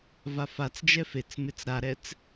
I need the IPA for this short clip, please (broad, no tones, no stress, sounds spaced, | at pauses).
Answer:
v a f a t͡s d͡ʒ ɛ f e t͡s m ɪ t͡s ɾ a ɾ ɛ t͡s